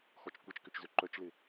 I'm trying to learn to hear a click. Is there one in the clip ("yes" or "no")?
yes